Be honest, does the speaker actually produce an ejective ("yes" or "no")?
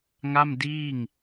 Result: no